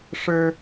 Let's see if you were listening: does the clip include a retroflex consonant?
yes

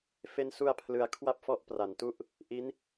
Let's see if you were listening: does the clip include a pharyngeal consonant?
no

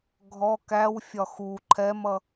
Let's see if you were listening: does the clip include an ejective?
no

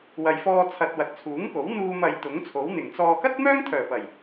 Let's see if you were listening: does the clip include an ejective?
no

